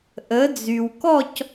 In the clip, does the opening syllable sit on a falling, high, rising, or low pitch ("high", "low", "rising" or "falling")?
rising